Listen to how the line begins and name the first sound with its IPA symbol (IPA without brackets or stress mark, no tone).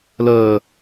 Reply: l